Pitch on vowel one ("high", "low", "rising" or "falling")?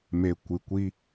low